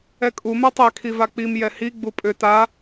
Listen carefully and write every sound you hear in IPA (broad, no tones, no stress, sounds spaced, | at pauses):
ɛ kʼ u m ɛ tˤ ɛ kʰ i v a k͡p i m j ɛ h i ɡ͡b u pʼ ʏ t a